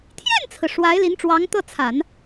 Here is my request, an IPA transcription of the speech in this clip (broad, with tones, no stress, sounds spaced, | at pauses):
t̪ʰ j ɛ˥˩ n t͡sʰ ɹ̩˩ ʂ w a˧˥ ɪ̯ l i˧˥ n ʈ͡ʂ w ɑ˧˥ ŋ t̪ ɤ˥˩ t͡sʰ a˨˩˦ n